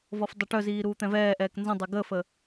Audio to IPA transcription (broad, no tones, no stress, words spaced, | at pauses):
vɔfdˤaʈœziː ɾuːt̪ɛ̃vɛːʔɛːk nzə̃dˤɛ ɡəfə